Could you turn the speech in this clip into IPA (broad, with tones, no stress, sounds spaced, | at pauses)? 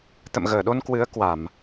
t̪ ə̰˧˨ m ɣ əː˧˩ ɗ o˧ n k w ɨ˨˦ ə̯ k w a˧˩˨ m